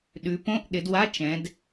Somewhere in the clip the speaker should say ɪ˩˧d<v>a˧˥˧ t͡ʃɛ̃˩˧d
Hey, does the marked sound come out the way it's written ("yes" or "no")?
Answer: no